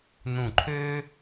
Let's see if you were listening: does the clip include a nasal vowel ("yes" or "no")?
yes